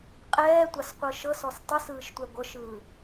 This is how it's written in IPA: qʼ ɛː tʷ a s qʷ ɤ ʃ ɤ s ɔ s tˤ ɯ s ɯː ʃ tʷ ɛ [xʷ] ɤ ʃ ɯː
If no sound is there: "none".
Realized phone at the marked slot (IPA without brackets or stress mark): ɡʷ